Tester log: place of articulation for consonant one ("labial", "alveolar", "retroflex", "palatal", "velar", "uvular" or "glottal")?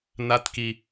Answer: alveolar